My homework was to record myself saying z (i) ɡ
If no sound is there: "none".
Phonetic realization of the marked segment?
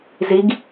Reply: i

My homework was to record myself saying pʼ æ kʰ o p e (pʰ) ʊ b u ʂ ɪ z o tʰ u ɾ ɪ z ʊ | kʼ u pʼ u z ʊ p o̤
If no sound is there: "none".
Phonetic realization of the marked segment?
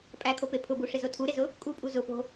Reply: pʰ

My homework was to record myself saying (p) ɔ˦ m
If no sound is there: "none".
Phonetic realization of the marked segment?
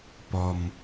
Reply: p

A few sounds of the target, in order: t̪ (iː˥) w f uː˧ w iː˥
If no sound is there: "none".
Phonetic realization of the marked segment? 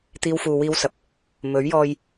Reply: iː˥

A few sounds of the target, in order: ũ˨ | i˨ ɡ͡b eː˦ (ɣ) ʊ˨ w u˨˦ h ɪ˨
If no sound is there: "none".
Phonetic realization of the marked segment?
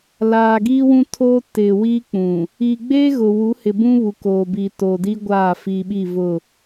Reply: ɣ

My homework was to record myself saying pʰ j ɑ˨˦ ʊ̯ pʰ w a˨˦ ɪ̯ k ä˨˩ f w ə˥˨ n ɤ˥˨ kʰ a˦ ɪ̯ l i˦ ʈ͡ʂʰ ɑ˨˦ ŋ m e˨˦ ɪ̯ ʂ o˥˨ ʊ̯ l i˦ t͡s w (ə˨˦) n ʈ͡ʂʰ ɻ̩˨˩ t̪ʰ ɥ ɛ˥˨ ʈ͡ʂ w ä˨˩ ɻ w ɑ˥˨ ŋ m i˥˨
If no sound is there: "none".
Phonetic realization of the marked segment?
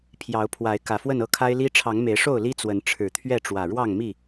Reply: ə˨˦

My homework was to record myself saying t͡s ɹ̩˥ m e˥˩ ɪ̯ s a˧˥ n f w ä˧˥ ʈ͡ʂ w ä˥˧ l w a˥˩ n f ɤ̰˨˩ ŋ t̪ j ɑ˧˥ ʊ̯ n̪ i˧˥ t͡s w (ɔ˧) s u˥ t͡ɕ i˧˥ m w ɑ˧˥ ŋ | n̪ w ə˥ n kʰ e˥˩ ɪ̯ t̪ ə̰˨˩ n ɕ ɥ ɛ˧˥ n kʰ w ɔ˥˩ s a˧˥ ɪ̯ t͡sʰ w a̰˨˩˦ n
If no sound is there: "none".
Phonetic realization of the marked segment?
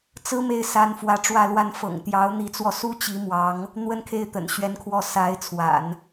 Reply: ɔ˧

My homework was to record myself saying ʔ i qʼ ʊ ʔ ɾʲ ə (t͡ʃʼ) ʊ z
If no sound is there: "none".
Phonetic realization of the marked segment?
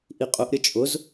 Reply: t͡ʃʼ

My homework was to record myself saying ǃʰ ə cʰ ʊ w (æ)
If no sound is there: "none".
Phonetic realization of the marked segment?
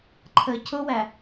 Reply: æ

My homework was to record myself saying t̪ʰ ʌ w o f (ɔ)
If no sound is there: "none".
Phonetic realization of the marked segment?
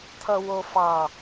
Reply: ɑ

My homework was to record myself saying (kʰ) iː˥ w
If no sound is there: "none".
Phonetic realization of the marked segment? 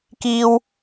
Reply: k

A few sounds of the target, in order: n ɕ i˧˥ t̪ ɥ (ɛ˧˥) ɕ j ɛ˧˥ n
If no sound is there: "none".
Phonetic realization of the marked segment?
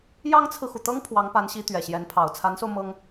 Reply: ɛ˨˩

